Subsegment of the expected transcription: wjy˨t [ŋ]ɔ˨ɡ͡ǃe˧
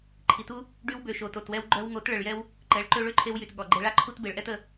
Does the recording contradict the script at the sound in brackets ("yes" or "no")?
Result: yes